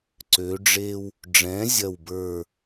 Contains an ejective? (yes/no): no